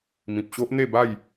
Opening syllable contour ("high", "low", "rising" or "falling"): low